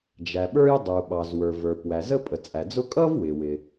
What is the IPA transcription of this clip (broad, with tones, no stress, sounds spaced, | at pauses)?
d͡ʒ æ˩ ɓ ə˞˥ j dˤ u˩ ɓ ɑ˩ z w ə˞˩ v ə˞˩ p w æ˩ z ə˥ pʼ ə˩ t͡sʼ æ˩ d͡z ʊ˥ kʼ ʌ˥ v w ɪ˩ w ɪ˩